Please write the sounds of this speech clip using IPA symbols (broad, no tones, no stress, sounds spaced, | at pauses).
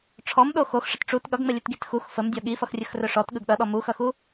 ʈ͡ʂʰ ɔ m ɗ o x o x ʂ ə t ʈ͡ʂ u t ɠ ʌ ɡ ŋ͡m ə lʲ ɵ t ɡ i t x u x f ə m dʲ ɔ ɠ i f ʌ x rʲ ɵ x r ɵ ʂ ɔ t ɠ ɯ ɡ ɗ ʌ ɗ ɔ m u x ʌ x u